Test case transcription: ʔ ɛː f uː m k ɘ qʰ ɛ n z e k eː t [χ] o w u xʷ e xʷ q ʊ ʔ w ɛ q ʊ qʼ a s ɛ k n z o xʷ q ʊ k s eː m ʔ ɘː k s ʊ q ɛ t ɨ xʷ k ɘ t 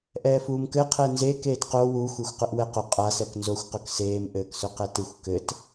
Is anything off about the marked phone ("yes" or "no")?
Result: yes